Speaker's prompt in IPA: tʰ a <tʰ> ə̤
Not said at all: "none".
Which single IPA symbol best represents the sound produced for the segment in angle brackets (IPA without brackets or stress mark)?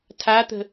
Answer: t̪